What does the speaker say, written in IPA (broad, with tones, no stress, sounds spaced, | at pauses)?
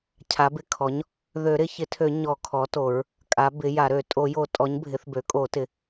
cʰ a˩˥ b ɪ˩˥ kʰ ɔ˩˥ ɲ | ð ø˨˩˦ ɾ ɪ˨˩˦ ç ɪ˩˥ tʰ ø˨˩˦ ɲ ɔ˨˩˦ kʰ ɔ˩˥ t o˨˩˦ ɹ | kʼ a˩˥ b ɪ˩˥ j a˨˩˦ ɾ ø˨˩˦ tʼ o˨˩˦ j o˨˩˦ tʼ ɔ˩˥ ɲ bʱ ɪ˩˥ θ b ø˩˥ kʼ o˨˩˦ t ɪ˩˥